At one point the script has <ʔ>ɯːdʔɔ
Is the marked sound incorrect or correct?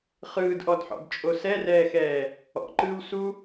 incorrect: χ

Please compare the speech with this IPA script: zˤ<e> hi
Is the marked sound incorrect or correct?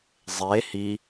correct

